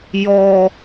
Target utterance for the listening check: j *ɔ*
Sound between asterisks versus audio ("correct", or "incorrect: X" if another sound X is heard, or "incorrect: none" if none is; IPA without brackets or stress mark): correct